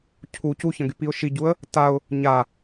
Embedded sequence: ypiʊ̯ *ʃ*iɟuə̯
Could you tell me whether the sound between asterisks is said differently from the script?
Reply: no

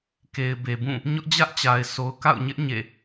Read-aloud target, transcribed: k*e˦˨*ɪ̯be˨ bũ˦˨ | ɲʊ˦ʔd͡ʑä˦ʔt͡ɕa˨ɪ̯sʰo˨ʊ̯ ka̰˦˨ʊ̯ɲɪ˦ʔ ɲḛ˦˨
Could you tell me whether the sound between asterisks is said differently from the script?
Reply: yes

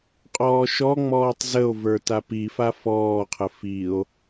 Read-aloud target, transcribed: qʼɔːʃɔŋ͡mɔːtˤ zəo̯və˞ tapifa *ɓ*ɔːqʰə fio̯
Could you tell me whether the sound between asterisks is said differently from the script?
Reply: yes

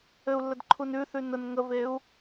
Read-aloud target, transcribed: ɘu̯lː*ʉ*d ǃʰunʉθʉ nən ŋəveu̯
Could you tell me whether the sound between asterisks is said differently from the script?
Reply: yes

